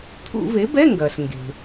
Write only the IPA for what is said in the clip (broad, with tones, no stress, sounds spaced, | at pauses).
t̪ʰ ṵ˧˩˧ v e˩˥ b ɛ˧˥˧ ŋ ɡ ɐː˩ s ŋ ɡ e̤˩